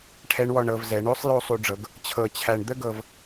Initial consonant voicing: voiceless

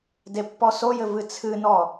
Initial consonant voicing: voiced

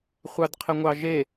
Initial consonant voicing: voiceless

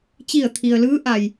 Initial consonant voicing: voiceless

